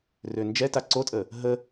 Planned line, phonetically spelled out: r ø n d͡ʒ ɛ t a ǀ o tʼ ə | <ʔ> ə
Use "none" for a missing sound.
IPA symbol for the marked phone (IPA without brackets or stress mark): ɦ